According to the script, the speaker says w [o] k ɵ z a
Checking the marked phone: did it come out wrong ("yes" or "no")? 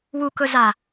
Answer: yes